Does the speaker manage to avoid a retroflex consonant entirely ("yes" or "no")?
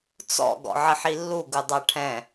no